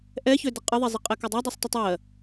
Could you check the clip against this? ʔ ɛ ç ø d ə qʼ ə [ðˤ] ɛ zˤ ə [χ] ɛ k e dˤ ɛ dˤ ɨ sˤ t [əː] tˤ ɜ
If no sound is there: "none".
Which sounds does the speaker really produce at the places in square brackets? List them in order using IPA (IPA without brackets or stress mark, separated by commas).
ðˤ, qʼ, ə